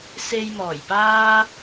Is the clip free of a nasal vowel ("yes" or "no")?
yes